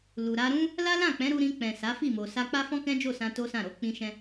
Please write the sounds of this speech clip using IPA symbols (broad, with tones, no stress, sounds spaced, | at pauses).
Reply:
l u˨ ɾ a˧ ɾ ũ˦ | l a˦ l ã˦˨ k͡p ɛ̃˨˦ ɾ u˧ ɾ ĩ˧ k͡p ɛ̃˨ s a˨˦ f i˦˨ m o˨ s a˧ k͡p a˦ f ɔ̃˦ k ɛ̃˦ d͡ʒ o˦˨ s ã˧ t o˦ s ã˦˨ ɾ o˨˦ k͡p ĩ˦ ʃ ɛ̃˦